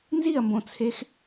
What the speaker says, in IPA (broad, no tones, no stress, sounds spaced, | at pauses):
n z i ɐ̯ m b õ t͡sʰ e x